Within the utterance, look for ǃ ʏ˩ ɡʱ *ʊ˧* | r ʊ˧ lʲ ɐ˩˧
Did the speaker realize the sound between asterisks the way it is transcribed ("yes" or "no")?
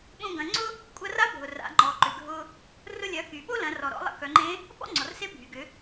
yes